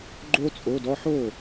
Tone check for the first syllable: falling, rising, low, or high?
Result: high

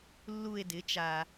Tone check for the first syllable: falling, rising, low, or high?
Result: falling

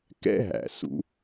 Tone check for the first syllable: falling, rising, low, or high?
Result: high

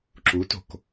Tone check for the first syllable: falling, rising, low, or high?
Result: rising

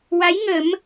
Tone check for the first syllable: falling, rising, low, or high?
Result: rising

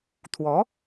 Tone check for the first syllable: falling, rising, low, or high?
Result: rising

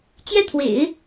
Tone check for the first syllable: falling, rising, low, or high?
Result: high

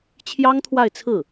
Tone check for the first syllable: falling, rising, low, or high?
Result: high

